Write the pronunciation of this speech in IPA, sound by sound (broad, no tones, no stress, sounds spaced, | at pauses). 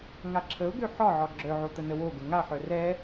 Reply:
ŋ a ǁʰ ə ʊ̯ ɡ ø ħ ɒ ʕ ɒ ɡ͡ǁ œ ʕ o t̪ ə n ə w o ɡ ə ŋ a ħ œ r ɛ